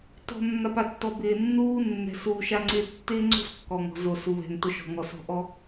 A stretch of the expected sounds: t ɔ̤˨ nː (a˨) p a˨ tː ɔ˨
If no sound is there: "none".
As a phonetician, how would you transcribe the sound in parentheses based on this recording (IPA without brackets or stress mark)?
a˨